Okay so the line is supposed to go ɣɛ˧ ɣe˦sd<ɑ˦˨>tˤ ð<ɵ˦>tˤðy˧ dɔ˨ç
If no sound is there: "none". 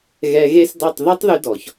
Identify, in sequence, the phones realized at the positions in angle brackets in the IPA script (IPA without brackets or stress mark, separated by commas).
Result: ɑ˦˨, ɵ˦